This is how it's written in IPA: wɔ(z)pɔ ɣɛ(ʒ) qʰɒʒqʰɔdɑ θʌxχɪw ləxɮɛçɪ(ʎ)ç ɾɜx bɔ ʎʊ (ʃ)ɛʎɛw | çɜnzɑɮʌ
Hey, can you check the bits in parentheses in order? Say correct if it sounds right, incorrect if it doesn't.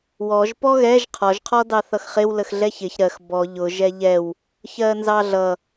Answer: incorrect: ʒ, correct, incorrect: none, incorrect: ʒ

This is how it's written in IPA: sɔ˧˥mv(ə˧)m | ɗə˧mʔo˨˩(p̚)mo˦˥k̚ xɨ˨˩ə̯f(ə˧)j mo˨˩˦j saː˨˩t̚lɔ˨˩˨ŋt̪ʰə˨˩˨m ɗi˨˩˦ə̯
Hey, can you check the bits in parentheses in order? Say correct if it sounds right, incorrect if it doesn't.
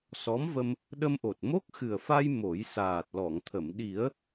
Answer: correct, incorrect: t̚, incorrect: a˧

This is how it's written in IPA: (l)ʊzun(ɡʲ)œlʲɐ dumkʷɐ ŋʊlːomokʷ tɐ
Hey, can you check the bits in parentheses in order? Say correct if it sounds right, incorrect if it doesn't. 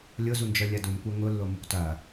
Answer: incorrect: lʲ, incorrect: d͡ʒ

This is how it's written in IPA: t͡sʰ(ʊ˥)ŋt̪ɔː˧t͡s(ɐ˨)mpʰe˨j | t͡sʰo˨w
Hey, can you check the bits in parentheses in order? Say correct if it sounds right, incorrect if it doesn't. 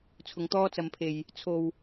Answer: incorrect: ʊ˨, correct

